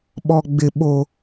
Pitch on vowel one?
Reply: low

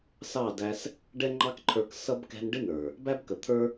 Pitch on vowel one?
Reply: falling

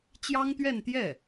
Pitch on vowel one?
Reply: high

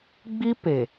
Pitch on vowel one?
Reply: high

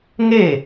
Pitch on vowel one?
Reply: falling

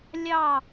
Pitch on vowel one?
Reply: falling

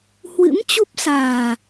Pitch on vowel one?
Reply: rising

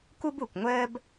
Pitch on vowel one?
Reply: high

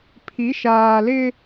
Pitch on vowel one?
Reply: rising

